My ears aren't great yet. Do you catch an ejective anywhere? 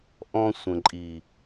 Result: yes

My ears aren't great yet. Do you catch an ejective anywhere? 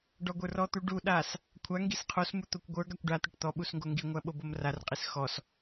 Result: yes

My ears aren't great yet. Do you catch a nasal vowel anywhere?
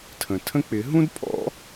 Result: yes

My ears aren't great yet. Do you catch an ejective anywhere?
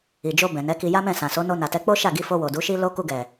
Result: no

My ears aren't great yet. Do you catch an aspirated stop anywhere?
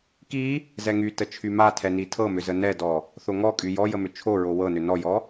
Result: yes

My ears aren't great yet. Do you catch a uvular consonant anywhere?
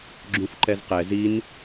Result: yes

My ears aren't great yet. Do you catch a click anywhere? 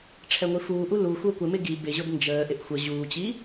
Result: no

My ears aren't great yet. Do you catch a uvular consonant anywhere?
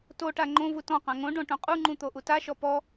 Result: yes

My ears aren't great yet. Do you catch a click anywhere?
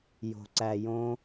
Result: yes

